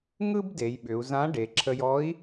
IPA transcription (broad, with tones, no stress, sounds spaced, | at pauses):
ŋ ɯ˥ b d e˩˧ j ɓ ʏ˩˧ u̯ z ã˧˥ ɖ e˩˧ ǁʰ ə˧ j ɔ˧˥ i̯